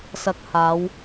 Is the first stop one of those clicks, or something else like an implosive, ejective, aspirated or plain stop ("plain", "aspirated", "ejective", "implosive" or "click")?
plain